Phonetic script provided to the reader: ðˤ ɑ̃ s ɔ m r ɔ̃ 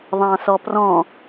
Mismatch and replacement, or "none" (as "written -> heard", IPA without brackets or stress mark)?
m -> p